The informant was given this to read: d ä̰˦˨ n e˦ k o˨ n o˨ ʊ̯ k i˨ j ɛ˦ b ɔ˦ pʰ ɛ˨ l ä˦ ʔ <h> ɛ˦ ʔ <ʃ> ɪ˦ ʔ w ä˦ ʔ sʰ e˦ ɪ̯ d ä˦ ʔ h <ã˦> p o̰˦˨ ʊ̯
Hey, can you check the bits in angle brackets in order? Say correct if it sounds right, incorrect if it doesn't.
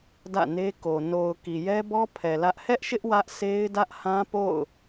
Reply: correct, correct, correct

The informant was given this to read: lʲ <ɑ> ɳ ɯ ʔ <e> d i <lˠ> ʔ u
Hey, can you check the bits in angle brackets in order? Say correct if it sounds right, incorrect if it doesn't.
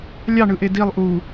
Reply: correct, correct, correct

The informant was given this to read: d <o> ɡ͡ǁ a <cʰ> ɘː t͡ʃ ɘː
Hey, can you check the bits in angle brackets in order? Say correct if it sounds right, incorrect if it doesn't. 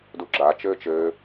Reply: incorrect: u, incorrect: t͡ʃ

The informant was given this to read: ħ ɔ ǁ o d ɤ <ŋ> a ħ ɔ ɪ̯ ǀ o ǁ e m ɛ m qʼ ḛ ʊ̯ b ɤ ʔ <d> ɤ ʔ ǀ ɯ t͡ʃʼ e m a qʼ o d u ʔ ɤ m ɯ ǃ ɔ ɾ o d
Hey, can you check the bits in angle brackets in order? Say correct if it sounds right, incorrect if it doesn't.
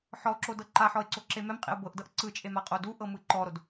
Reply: incorrect: ǃ, correct

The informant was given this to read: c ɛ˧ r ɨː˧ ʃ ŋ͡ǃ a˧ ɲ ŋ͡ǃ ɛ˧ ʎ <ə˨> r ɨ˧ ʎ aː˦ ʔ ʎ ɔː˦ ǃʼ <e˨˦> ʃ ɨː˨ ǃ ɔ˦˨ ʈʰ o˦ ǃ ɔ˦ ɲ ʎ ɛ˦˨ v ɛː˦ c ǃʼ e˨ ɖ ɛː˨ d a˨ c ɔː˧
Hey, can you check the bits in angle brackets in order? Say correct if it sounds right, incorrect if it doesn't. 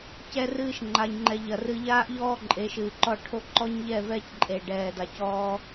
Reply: incorrect: ɐ˨, correct

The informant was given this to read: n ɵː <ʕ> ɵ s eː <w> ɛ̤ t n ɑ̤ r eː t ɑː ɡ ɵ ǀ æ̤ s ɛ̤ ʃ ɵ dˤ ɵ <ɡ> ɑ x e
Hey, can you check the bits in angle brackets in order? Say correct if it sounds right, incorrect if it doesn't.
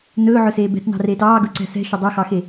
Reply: correct, incorrect: b, incorrect: x

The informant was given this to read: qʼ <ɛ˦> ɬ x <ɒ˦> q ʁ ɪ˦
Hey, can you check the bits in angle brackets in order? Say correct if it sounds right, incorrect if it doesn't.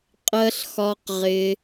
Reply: incorrect: ɜ˦, correct

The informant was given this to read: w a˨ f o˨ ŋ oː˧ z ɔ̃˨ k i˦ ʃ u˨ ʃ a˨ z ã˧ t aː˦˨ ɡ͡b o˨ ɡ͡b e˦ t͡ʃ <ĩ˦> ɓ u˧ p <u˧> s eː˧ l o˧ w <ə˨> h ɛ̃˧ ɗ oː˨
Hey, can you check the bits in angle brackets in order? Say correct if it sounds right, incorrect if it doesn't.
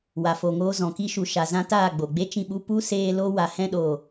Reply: incorrect: ĩ˧, incorrect: u˦, incorrect: a˨

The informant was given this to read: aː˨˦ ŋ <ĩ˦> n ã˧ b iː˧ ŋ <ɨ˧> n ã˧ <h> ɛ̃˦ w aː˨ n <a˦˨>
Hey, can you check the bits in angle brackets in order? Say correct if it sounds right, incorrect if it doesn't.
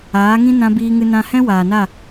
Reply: correct, correct, correct, correct

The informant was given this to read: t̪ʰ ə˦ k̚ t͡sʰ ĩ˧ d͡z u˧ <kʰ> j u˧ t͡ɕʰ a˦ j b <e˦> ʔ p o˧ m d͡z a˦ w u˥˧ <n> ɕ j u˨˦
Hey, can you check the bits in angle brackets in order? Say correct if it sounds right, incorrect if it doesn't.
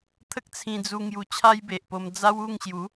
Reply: incorrect: ŋ, incorrect: e˨, incorrect: ŋ

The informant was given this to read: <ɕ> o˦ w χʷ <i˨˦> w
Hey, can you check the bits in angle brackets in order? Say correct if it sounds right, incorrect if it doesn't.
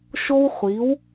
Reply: incorrect: ʃ, correct

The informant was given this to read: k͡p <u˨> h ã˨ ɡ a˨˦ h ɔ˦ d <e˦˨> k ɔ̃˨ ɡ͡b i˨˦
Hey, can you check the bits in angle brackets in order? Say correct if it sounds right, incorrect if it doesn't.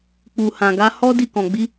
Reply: correct, incorrect: i˦˨

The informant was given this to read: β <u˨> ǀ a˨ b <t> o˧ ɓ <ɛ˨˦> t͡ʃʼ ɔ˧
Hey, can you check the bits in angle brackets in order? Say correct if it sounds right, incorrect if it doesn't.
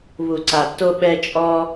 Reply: correct, correct, incorrect: ɛ˧

